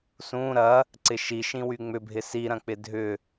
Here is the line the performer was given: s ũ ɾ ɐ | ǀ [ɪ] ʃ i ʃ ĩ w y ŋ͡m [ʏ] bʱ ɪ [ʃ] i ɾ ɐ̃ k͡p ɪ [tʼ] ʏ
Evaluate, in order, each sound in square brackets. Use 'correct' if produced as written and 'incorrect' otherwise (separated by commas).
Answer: correct, correct, incorrect, incorrect